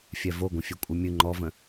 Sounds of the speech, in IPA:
fʲ ɛ v o ɡʷ ə̃ fʲ ø kʷʼ ɨ mʲ ɨ ŋ͡ǃ ɔ v ə̃

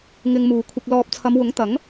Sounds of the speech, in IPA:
ŋ ɪ˧ ŋ m uː˨ kʷʰ ɪ˨ k̚ l ɔː˨ p̚ t͡sʰ ɐ˨˧ m w ʊ˨˥ ŋ t̪ ɐ˨˥ ŋ

